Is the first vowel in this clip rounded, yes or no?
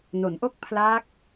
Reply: yes